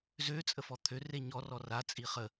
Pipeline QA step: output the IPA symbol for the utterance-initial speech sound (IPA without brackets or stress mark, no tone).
z